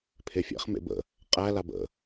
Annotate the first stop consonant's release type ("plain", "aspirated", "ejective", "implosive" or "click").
aspirated